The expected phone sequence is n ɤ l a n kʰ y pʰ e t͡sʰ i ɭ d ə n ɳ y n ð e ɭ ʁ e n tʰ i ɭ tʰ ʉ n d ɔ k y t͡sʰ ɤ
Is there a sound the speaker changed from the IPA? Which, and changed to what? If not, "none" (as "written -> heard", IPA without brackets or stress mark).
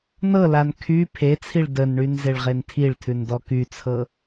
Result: ð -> z